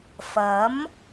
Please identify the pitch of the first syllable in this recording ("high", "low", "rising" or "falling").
rising